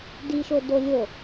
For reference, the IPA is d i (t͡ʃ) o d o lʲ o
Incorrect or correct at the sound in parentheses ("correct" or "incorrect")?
incorrect